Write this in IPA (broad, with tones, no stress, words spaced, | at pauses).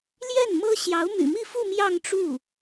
ljɛ˥˩nmɤ˥ ɕjɑ˧˥ʊ̯my̰˨˩mi˥˧fu˥˧ mjɑ˥˧ŋʈ͡ʂu˥˩